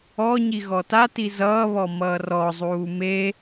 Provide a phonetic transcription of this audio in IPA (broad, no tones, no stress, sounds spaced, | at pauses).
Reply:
ɔ ɲ i ɣ ɔ t a t i z ʌː β ɔ m ʌː r ɔ zˤ uː m e